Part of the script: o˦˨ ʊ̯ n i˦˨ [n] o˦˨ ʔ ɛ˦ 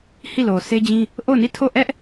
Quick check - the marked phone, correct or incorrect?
incorrect